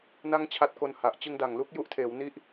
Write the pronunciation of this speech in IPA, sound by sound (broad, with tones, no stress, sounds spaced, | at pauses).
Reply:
n a˥˩ ŋ t͡ɕʰ a˦˥ t̚ k o˧ n h a˨˩ ʔ t͡ɕ ɯ˧ ŋ d a˨˩ ŋ l u˦˥ k̚ j u˦˥ ʔ tʰ eː˩˦ w n i˥˩ ʔ